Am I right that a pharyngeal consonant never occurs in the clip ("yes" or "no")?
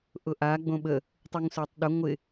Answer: yes